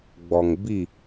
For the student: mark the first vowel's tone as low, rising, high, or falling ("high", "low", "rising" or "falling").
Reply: low